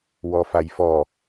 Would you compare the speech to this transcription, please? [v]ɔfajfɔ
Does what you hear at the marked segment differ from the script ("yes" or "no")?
yes